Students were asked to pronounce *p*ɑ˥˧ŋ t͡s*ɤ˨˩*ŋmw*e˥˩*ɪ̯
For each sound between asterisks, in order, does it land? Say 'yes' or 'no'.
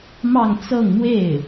no, no, yes

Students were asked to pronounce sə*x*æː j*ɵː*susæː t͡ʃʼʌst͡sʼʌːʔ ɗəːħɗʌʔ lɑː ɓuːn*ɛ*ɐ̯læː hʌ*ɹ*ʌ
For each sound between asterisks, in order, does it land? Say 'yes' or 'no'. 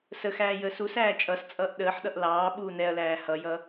yes, no, yes, no

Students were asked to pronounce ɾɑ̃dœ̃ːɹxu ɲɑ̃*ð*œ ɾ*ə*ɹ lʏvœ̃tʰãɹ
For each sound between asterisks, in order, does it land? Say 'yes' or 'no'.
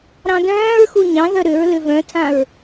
yes, no

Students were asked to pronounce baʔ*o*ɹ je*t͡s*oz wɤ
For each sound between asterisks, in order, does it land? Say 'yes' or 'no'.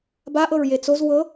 no, yes

